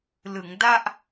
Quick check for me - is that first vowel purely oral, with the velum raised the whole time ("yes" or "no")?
yes